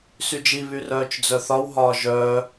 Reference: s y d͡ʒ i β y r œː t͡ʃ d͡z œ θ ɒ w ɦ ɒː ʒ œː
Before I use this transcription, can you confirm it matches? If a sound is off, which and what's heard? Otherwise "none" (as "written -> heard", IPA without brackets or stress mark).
none